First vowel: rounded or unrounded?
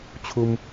rounded